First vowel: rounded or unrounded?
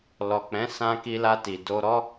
rounded